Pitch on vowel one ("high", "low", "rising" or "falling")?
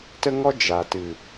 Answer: high